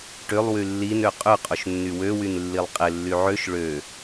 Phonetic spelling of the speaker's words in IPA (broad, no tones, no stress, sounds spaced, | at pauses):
ʈ ʏ lˠ w y lː i n ø qʼ ʏ qʼ o ʃ nː y w ø w y n lː i lˠ qʼ ɪ lː y ʕ ø ʃ ɭ ø